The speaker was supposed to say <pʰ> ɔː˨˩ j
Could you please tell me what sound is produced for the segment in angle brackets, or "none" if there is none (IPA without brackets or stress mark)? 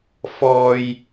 f